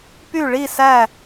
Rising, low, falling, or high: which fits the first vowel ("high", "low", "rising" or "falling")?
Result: falling